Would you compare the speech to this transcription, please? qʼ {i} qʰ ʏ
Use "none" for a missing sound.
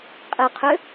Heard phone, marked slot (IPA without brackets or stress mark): ɪ